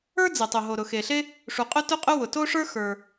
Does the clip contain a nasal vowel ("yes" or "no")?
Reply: no